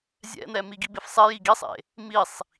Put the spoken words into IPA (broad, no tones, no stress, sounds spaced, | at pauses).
zʲ ɛ̰ n̪ ɛ m i ɡ i b e f sˤ e j i ɡ i sˤ ḛ | m i sˤ